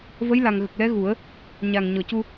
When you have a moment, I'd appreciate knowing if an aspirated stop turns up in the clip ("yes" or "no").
no